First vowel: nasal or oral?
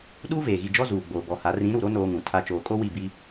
oral